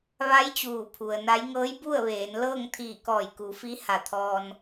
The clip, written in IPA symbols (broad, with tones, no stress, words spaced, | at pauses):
ʋa˧˥j t͡ɕuː˧˩pʰu˩ə̯na˧˥j ŋɤː˧˥jbu˥˨ə̯ʋeː˩˧nlɤː˥˨ŋ t̪ʰiː˧˩kɔː˧˩jku˩˧ fi˧˥ ha˧˩t̪ʰɔː˧n